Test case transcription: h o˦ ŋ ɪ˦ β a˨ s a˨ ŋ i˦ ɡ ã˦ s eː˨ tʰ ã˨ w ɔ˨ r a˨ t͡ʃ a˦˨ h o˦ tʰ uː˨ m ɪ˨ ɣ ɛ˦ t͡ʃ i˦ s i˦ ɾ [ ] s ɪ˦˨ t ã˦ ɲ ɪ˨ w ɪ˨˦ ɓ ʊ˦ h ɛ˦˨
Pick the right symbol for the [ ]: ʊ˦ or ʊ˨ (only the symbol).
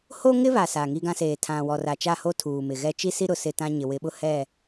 ʊ˨